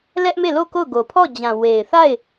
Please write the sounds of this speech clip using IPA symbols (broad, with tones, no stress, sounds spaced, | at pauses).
l ɛ˦ ʔ m e˦˨ l o˦˨ k o˦˨ ʊ̯ ɡ o˨ pʰ ɔ˦˨ d͡ʑ ã˨ w e˨ ɪ̯ θ a˦˨ ɪ̯